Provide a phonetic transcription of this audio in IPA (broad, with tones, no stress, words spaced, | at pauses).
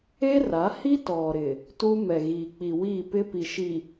e˦ra˨˦hi˦ tɔ˨ɾɪ˨ | tu˦ mɛ˨ɣiː˨ k͡pi˨wiː˦˨pɪ˦pi˨ ʃi˨